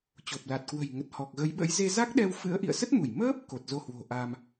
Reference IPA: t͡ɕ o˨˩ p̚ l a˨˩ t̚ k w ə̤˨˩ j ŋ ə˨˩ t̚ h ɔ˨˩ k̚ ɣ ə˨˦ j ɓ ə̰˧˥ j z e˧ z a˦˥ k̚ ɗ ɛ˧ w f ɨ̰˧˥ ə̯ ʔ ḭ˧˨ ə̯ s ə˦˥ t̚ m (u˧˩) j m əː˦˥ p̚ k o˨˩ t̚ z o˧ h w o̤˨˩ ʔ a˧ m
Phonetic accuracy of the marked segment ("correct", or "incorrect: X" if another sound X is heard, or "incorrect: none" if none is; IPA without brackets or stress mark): correct